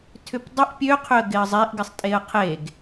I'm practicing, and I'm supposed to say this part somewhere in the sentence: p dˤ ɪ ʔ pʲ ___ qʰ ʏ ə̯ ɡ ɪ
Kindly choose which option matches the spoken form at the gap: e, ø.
ø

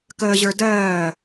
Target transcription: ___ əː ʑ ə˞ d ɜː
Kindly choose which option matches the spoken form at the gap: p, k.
k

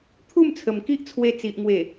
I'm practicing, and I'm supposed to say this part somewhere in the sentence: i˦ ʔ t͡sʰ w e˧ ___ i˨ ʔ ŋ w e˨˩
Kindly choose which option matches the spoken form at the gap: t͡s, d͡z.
t͡s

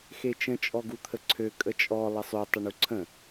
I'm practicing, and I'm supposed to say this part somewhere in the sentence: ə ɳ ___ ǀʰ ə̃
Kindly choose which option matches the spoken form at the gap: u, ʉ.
u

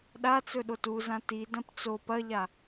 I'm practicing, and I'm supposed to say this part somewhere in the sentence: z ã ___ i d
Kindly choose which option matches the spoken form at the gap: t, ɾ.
t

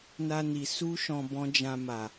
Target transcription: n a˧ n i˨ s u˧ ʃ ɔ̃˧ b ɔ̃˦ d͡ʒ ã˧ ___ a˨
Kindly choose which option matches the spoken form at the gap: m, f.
m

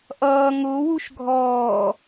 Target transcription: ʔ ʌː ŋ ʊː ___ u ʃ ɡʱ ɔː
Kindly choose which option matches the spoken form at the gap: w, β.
w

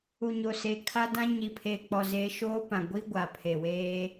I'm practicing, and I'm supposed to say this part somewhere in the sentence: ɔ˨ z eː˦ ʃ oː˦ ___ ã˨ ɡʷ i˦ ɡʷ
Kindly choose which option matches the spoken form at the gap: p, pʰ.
p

